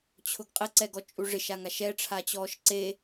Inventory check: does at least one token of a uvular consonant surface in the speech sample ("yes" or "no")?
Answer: yes